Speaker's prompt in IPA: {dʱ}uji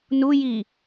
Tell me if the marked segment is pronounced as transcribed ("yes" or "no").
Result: no